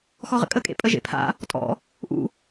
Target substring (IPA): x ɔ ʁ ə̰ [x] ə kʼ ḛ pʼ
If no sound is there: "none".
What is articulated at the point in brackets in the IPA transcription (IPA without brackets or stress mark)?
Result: kʼ